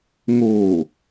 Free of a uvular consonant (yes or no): yes